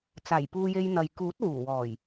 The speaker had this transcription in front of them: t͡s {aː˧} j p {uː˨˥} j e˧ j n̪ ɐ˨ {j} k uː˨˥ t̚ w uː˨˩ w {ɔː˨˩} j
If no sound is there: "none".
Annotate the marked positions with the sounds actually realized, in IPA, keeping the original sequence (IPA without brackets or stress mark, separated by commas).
aː˨˩, uː˧, j, ɔː˨˩